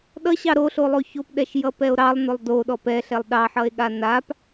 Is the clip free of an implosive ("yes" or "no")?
no